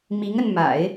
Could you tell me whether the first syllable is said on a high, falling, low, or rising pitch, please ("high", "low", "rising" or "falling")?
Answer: rising